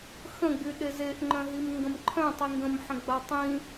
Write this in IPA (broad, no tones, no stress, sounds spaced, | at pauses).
x ə̃ ɡ͡b y ɗ e z e ʔ ŋ͡ǃ œ̃ ɦ i m ŋ ɡ ə̃ m ǃʰ œ̃ tˤ i ŋ ɡ ə̃ m ħ ə̃ ɡ͡b a tˤ ĩ